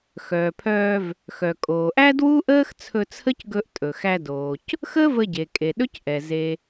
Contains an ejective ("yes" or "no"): yes